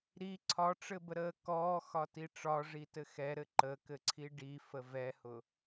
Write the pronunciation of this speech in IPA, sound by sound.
ɾ i ǀʰ ɒ ʈ͡ʂ ɘ b ə ɾ əː k ɔː x ɒ t i ʈ͡ʂ ɒ ʐ i t ɘ x ɛ ɾ ɘ ǃ ə k ɘ ǀʰ i ɖ i f ə v ɛ h ʊ

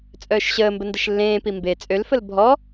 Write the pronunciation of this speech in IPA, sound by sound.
t͡sʼ œː ʃ ɕ əː m b ə n d ə ʃ lː ẽː p i m b e t͡sʼ ø l f ə l bʱ ɔ

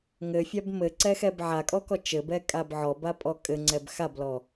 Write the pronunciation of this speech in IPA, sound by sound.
ŋ ɘ fʲ a b m ɘ ǀ ɛ x ɛ b ʕ a kʼ ɔ k ɔ t͡ʃ ɘ b ɛ kʼ a b ʕ ɔ b a pʼ ɔ kʼ ɘ ŋ͡ǀ ɛ b x a b l ɔ

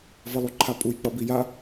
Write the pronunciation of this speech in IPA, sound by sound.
v ʌ lˠ u ǃʰ a pʼ u j k͡p ʌ b i j a

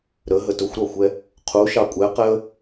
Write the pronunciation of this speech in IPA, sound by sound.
ɾ ə ɦ ə t ʊ xʷ ɾ ɒ xʷ ɛ | qʰ u ʃ ɑ kʷʼ ɛ q ɛ ə̯

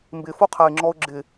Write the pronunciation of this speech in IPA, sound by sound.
m b ɪ f o qʰ a ɪ̯ ŋ͡ǁ ɔ ʊ̯ ɡ͡ǁ ɪ

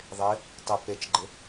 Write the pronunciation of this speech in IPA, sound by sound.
ðˤ ɪ | tˤ ɪ p e t͡ʃ ɡ͡ǃ ɪ

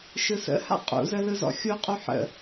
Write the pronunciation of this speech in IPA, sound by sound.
ʃ ɯ s ə̰ h a̰ qʼ ṵ z ə l ɯ z ɔ̰ xʲ u qʼ u ħ ə̰

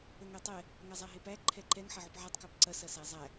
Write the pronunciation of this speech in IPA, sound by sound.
ə ŋ ɛ tˤ ɛ | ŋ æ zˤ æ ɦ e p æ ǃʰ ɛ ǃ ɛ ŋ ħ ɐ ʕ ʉ p ʕ a tˤ k æ p ǀ ɐ s ɐ s æ zˤ æ

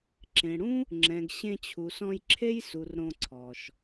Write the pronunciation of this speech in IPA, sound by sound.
ǁ ẽ˨ ɽ ũ˦ | ŋ͡ǁ ɛ̃˨ ɡ ɕ ẽ˧ t͡ɕʰ u˨ s ɔ̃˧ j ǁʰ e˦ j s u˨ r ɾ õ˧ ǀʰ ɔ˨ ʃ

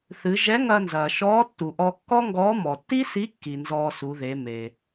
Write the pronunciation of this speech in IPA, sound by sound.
θ ɨ˩˧ ʒ ɛ˧˥ ŋ ɐː˧ n z ɐː˩ ʃ ɔː˧˥ tː u˩ ʔ ɔ˧ kː ɔ˥ ŋ ɡ ɔː˧˥ m ɔ˩ tː i˥ s i˧˥ kː i˩ n z ɔː˧ s u˩˧ ð e˩˧ m e˩

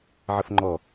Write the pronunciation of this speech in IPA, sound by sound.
ʕ ə f ŋ͡ǃ ɔ

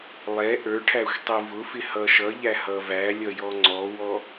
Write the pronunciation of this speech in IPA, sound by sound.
lˠ ɛ ʔ ə˞ ʈʰ æ xʷ tˤ i v ʊ f ɪ h ʌ ʃ ʌ ʎ æ h ʌ v æ lʲ ʌ j ɔ ŋ͡ǀ ɔ w ɔ

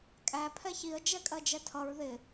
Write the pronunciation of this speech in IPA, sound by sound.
kʼ æ pʰ ɛ ç i ə̯ d͡ʒ ɛ kʼ ɜ d͡ʒ ɛ tʰ ʌ ɹ ð ɪ

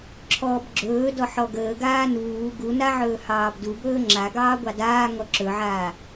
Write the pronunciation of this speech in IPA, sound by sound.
ǁʰ ɔː b ɡ͡ǁ ɵː d ɔ ħ ɔ ɡ əː ɡ aː n uː ɡ u n a ʕ ɵː h ɑː b d u b ɵː ŋ͡ǁ a ɡ ɑː ɡʷ ɑ d aː ŋ ɔ ǁ ɵ ʕ aː

